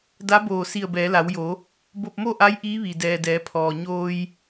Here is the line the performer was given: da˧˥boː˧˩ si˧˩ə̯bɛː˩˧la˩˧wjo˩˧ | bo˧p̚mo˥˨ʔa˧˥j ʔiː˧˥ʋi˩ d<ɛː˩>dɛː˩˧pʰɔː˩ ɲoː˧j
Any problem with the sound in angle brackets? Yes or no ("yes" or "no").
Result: no